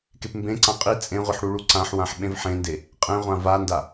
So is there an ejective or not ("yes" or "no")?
yes